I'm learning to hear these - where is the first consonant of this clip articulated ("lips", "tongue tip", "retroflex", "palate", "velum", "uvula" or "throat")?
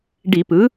retroflex